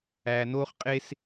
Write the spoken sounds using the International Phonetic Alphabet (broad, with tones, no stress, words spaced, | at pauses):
æː˧noː˥χqʼe˥s